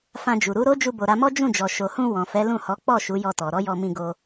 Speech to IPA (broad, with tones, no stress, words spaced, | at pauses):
fã˧d͡ʒu˨ ɾu˨˦ɾo˦ d͡ʒu˧bo˨ɾa˧mɔ˦ d͡ʒũ˦˨d͡ʒɔ˨ ʃo˨hũ˧ wɔ̃˨fɛ˨˦lũ˦˨hɔ˨˦ k͡pɔ˦˨ ʃu˨˦jɔ˧tɔ˨ ɾɔ˨˦jɔ˧mĩ˧ ɡo˧